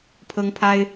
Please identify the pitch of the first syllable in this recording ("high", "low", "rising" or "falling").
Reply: high